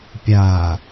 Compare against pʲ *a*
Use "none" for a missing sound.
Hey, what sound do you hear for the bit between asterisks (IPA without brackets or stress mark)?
a